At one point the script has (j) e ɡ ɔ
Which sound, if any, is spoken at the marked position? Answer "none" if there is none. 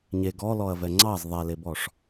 ɲ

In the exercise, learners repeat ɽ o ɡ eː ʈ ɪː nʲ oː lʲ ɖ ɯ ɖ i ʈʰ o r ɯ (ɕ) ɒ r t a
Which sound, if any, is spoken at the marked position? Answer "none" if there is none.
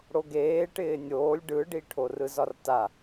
z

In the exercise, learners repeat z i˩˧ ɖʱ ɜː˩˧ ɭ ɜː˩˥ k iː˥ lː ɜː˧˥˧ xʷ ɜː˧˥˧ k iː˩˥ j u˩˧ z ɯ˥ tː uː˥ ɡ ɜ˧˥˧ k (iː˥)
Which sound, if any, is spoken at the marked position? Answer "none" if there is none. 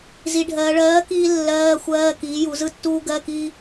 iː˥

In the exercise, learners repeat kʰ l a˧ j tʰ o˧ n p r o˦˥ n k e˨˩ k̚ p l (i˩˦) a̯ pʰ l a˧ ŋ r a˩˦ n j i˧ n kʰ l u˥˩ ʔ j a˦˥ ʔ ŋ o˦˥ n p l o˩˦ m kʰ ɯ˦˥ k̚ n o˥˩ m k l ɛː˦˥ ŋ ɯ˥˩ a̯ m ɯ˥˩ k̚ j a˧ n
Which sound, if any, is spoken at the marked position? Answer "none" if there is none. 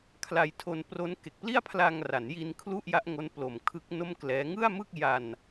i˥˩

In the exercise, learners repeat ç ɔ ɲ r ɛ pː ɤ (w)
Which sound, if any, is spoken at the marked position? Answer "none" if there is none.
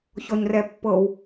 w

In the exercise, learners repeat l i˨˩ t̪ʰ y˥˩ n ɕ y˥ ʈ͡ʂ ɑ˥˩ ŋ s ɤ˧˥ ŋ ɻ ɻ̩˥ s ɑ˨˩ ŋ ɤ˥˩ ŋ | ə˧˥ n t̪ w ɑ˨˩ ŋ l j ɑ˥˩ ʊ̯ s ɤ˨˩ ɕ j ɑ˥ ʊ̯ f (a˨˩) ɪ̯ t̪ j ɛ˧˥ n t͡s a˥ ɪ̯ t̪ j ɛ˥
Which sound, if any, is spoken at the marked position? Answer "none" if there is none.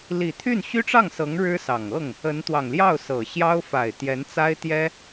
a˨˩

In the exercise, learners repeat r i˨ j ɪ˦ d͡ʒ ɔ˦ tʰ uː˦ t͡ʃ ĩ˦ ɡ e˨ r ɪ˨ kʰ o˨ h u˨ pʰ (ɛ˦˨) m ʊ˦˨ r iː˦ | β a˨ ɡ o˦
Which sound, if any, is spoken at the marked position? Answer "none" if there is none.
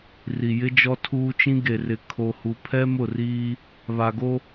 ɛ˦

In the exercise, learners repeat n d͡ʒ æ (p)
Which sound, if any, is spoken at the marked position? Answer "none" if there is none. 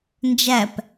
p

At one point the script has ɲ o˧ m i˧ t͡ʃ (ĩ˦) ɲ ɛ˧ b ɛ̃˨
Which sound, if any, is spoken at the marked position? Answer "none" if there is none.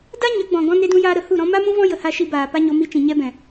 ĩ˨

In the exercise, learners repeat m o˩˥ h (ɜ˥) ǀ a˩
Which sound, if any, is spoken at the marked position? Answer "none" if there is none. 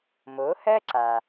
ɜ˥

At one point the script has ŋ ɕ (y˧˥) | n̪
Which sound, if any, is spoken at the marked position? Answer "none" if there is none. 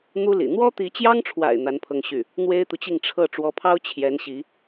y˥˩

